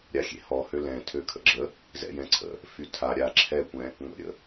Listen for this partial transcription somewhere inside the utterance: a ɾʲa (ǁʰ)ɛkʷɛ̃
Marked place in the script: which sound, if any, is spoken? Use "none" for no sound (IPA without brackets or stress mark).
ǁʰ